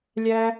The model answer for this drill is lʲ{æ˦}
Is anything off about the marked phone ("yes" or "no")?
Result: no